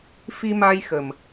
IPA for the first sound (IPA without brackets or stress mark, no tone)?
f